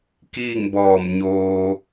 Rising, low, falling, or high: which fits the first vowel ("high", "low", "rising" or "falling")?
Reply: falling